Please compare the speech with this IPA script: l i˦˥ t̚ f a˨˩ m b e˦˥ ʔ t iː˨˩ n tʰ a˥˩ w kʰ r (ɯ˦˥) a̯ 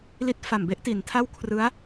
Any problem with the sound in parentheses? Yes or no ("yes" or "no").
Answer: no